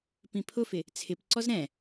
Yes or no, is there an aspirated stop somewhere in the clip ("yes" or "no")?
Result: yes